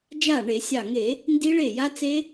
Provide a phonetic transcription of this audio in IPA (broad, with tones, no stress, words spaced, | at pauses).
d͡ʒa˥˩ɳe˧˩˧sʲɑ˧˩ŋe˧˩˧ | ndi˦˥ɭe˥˩ja˦˥t͡se˦˥